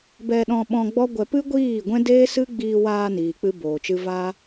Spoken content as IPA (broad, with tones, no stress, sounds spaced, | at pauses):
b ɛ˧ ɗ ɔ̃˧ ɓ ɔ̃˧ ɡ͡b ɔ˦ ɡʷ ɛ˧ p ɨ˦ ɡʷ iː˦˨ ɡʷ ɛ̃˦ d eː˦ s ɨ˦ ɡ͡b iː˧ w aː˧ n iː˨ k͡p ɨ˦ b oː˨ t͡ʃ ɨ˦ v a˦